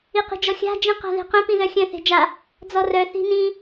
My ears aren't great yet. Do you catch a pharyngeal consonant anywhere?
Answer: no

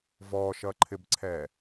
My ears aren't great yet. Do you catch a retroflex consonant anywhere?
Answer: no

